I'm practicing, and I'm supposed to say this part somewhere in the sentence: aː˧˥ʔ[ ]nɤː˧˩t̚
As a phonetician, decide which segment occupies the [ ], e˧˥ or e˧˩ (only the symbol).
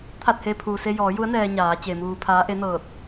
e˧˥